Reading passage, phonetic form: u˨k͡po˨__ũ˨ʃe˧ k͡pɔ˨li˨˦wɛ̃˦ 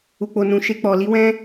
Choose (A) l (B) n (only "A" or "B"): B